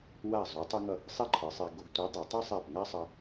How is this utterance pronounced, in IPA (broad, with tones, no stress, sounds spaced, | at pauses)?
w a˧˩ zˤ u˩˧ tˤ u˧ ŋ ʌ˧˩ | sˤ i˥ ǃʰ ɯ˩˧ sˤ e˧ ɡ o˧ ɡ tʷ i˨˥ dˤ o˩˧ tˤ e˥ sˤ ɛ˧˩ p ŋ a˥ sˤ ʌ˧